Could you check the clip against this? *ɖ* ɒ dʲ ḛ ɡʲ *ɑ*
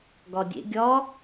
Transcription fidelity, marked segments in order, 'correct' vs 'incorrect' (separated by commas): incorrect, incorrect